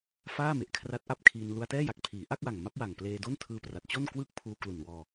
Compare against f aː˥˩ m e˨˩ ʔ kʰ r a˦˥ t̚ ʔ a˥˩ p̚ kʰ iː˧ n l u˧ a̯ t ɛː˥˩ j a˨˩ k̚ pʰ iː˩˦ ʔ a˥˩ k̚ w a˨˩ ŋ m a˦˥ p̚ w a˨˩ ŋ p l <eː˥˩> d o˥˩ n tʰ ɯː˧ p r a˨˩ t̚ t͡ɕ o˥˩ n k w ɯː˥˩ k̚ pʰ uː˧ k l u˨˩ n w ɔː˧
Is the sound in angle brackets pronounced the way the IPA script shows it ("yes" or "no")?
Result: no